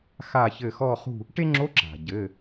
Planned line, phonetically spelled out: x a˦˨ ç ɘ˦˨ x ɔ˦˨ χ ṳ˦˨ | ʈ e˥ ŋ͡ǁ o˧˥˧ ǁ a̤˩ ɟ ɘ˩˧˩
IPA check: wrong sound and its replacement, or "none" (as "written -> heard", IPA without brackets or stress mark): none